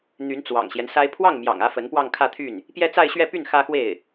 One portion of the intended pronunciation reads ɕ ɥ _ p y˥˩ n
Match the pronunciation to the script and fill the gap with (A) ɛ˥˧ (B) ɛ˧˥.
A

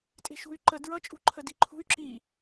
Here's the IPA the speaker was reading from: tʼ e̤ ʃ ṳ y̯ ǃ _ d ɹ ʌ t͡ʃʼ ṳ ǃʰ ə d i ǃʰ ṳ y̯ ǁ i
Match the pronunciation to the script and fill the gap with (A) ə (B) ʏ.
A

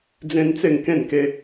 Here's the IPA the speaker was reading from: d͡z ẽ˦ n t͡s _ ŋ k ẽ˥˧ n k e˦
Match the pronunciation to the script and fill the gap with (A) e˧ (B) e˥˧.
B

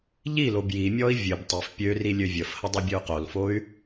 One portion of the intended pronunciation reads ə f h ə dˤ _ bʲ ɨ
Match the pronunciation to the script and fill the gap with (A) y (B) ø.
A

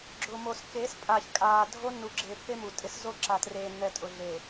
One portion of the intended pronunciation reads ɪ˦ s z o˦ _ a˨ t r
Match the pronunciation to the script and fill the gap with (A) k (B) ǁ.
B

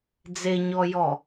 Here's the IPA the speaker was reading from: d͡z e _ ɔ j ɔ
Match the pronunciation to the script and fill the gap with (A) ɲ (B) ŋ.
A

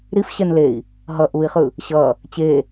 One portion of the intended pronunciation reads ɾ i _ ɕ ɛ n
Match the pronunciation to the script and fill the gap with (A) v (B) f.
B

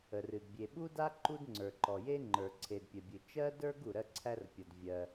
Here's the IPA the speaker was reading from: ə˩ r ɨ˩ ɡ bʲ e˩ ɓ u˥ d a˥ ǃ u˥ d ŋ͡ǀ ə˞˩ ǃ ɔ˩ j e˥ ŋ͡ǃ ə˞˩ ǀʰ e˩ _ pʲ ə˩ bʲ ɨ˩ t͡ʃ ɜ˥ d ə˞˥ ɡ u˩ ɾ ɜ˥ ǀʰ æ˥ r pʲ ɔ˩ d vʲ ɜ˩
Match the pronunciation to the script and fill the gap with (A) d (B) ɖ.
A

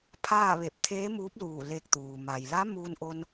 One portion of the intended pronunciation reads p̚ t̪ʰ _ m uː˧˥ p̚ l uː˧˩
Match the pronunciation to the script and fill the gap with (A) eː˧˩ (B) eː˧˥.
B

